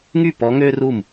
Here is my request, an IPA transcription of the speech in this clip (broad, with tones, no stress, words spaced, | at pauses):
ŋy˥˩pɔ˨˦ ŋø˥ru˥˩m